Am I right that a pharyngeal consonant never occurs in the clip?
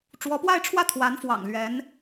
yes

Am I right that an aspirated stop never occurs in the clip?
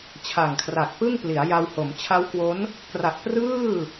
no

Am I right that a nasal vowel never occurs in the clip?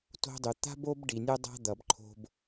yes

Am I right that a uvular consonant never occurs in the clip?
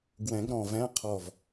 no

